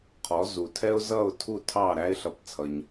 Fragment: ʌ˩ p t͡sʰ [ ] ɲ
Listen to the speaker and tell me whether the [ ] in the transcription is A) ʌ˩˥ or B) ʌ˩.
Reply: B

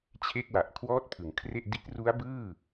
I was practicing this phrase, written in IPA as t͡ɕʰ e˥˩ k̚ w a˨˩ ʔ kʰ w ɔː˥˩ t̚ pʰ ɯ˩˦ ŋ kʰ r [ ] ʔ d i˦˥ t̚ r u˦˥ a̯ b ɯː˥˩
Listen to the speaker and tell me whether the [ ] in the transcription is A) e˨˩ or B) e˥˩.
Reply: B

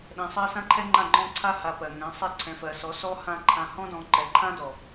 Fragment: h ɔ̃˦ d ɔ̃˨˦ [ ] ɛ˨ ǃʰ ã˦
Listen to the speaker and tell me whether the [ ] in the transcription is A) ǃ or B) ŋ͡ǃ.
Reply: A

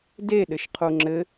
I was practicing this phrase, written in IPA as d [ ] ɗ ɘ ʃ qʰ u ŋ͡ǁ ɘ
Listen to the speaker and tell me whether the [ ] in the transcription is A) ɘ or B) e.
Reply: B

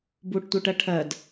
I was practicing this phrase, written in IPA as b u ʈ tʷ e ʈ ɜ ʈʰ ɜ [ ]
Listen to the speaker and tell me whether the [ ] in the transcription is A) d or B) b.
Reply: A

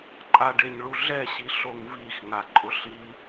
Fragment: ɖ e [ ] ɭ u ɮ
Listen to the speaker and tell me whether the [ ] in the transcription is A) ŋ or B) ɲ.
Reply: B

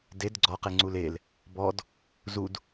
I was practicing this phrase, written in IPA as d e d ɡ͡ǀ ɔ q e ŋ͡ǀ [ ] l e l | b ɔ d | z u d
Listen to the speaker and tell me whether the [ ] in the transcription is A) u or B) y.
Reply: A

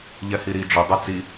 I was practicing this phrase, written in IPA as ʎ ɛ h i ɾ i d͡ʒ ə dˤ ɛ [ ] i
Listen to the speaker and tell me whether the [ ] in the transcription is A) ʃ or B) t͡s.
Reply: B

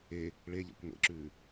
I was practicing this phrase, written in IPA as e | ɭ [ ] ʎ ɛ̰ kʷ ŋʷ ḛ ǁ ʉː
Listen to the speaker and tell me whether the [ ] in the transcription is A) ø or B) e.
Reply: B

